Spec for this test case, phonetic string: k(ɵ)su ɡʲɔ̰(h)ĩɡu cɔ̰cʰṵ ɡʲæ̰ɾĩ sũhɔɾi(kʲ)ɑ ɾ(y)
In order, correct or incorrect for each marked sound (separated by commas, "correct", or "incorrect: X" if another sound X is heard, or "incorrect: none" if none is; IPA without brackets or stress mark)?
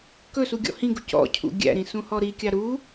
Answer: correct, correct, correct, incorrect: u